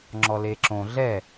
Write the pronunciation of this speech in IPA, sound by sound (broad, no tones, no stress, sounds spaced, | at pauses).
ŋ͡ǁ ɔ l e ǁ õ ɮ ɛ